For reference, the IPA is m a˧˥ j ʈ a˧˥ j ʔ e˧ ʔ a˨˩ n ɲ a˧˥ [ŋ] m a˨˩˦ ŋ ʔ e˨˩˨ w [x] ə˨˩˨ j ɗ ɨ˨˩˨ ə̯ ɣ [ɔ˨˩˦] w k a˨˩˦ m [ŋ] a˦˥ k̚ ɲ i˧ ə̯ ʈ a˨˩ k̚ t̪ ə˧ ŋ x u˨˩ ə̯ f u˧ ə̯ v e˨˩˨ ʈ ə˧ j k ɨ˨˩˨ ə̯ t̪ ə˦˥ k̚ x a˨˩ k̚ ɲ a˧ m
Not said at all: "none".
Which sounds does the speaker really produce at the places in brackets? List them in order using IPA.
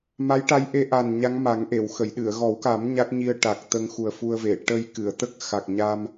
ŋ, x, ɔ˨˩˦, ɲ

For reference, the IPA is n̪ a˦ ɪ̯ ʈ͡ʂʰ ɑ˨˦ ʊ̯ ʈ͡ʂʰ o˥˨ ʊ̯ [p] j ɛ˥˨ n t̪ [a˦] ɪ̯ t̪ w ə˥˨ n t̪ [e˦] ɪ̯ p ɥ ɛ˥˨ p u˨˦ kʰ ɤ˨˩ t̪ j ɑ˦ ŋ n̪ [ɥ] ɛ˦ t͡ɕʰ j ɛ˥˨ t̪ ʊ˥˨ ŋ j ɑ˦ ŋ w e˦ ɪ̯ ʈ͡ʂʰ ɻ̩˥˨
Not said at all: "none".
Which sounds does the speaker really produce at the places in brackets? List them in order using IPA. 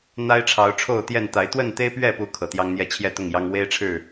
t̪, a˨˦, e˦, j

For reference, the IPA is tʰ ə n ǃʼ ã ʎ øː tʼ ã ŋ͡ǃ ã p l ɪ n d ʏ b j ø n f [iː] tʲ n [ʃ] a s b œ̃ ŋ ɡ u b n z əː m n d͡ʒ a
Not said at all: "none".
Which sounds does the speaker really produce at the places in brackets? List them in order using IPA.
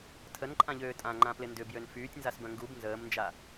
yː, z

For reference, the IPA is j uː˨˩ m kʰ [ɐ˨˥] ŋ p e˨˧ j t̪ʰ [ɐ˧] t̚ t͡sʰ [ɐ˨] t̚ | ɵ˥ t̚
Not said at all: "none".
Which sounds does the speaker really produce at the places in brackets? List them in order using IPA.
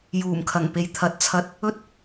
ɐ˨˩, ɐ˨, ɐ˧

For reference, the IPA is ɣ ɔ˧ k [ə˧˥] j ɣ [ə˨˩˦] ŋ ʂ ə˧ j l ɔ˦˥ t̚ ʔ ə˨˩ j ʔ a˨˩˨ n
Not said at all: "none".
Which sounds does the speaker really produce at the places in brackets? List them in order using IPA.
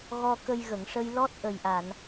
ə˧, ə˨˩˨

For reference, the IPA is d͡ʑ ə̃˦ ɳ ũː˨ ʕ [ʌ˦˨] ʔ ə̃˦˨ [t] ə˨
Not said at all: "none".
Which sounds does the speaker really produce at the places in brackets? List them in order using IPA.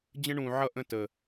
ʌ˦˨, t

